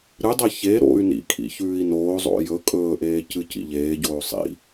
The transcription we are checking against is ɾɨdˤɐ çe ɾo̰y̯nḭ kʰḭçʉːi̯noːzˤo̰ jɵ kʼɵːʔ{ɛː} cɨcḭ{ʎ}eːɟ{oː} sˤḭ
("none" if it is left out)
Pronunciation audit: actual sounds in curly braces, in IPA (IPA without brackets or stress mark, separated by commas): eː, ʎ, oː